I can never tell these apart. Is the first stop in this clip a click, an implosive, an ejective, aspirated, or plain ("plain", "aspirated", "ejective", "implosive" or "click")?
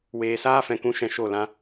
plain